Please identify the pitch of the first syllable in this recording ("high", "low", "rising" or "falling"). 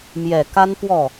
low